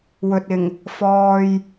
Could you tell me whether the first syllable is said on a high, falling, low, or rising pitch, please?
low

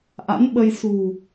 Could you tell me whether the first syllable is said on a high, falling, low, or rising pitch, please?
rising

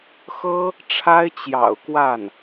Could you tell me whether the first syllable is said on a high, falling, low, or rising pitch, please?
high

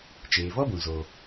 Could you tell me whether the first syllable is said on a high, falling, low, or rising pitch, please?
low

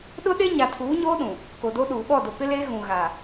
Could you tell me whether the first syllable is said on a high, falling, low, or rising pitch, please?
high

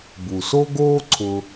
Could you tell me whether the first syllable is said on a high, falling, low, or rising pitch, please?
low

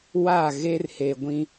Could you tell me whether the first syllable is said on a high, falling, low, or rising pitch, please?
falling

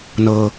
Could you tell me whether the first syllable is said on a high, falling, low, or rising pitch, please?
low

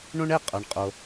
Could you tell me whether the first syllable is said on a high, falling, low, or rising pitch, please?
high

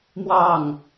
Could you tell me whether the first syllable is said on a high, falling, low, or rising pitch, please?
falling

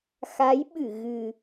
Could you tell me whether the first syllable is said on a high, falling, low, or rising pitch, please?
rising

